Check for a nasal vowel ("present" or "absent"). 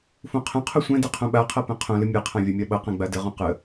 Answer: present